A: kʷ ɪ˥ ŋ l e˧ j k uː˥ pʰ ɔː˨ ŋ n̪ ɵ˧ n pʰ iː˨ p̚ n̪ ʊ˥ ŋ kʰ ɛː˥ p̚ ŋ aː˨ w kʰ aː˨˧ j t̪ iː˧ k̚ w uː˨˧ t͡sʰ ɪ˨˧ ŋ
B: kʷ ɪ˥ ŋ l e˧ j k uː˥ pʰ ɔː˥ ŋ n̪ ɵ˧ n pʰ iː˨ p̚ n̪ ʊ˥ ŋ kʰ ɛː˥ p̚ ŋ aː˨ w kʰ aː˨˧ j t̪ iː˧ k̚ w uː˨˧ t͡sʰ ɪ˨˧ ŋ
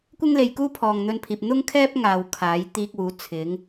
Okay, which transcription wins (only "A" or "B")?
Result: A